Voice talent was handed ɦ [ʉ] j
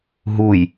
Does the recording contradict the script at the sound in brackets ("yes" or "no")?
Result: yes